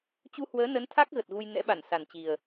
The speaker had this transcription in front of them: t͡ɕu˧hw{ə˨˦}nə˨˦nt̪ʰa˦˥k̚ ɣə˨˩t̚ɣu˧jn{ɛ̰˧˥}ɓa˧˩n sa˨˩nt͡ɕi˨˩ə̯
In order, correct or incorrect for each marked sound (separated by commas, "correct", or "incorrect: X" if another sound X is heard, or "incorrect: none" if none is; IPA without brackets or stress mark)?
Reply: incorrect: əː˨˦, correct